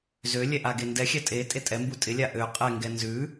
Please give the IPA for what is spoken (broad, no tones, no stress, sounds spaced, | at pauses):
z ø lʲ ɛ ʔ a ɡ e n d ɛ xʲ æ tʼ e tʼ e tʼ ɛ m b u tʼ ɪ lʲ a ʔ ø qʼ ɛ ŋ ɡ ɛ n z ʉ